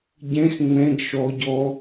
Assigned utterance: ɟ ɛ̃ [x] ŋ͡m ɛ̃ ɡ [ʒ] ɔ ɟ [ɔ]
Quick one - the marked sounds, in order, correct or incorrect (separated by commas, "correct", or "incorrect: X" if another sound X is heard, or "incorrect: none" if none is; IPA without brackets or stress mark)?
correct, incorrect: ʃ, correct